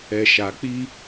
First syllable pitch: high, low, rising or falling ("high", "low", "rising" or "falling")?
low